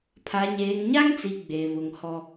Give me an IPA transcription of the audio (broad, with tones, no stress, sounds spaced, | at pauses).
pʰ a˨ ɲ eː˨ ŋ ɲ a˦ ŋ t͡s i˨ ɡ͡b e˨ β ʊ˨ ŋ h ɔ˦